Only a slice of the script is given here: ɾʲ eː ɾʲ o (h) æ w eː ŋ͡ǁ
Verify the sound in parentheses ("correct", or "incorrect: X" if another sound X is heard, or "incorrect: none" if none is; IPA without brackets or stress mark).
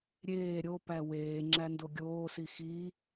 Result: incorrect: p